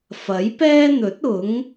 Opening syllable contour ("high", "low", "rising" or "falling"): rising